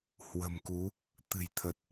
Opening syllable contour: low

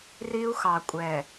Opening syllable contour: high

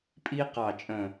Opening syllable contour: high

